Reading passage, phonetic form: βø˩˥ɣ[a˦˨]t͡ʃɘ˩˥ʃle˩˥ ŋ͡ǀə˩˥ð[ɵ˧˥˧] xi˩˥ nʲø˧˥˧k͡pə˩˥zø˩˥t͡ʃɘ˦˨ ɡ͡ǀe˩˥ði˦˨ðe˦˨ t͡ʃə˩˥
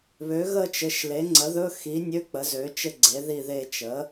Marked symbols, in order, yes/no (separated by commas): no, yes